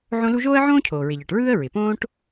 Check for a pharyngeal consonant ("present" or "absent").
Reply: present